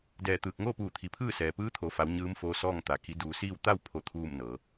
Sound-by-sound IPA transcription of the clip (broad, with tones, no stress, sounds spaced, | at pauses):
d ɛː˧˩ t̪ ɯː˧˩ k̚ ŋ oː˥˨ p uː˧˩ t̪ʰ i˩ pʰ ɯː˥˨ s ɛː˩ p ɯː˧˥ t̪ʰ o˩˧ f a˩˧ w ɲ ɯː˧˥ m f oː˧˥ s ɔː˥˨ ŋ t̪ a˩ k i˩˧ d uː˩˧ s iː˥˨ w t̪ a˥˨ w pʰ o˥˨ t̪ʰ uː˥˨ m n ɤː˩˧